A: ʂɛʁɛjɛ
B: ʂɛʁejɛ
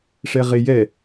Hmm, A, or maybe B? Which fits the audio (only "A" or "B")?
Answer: B